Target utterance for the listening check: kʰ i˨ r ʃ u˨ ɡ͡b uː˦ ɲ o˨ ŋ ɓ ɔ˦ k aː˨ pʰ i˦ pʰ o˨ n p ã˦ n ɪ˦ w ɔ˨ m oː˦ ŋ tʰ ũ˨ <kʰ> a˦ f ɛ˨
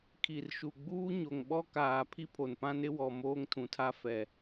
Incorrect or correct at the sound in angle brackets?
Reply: incorrect: tʰ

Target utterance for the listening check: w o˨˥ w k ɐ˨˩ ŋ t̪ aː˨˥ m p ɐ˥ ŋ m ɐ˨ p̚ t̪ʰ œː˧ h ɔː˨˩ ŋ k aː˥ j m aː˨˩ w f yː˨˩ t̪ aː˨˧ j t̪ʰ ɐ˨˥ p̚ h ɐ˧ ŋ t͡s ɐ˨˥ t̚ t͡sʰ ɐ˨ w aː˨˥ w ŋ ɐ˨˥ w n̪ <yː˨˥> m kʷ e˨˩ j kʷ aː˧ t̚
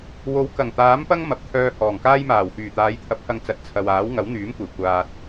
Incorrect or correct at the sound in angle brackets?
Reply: correct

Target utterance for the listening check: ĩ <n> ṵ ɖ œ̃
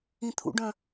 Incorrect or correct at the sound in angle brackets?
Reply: incorrect: t̪ʰ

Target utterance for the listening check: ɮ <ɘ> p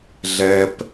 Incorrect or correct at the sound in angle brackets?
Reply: incorrect: ɛ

